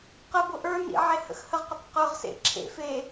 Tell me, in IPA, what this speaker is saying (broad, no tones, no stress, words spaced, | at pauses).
qəbʊ ʔə˞nḭ ʕehə̰xhəʁqʊtˤ qə˞ʁsḛ ǁʰḛf e